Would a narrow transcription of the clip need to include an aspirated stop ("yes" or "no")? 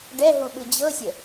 no